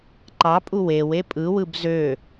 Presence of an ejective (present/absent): present